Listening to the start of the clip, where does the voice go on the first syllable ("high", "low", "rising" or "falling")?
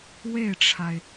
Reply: falling